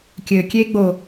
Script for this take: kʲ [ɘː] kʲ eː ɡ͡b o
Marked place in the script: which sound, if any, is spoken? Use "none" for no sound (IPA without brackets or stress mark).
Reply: ɘː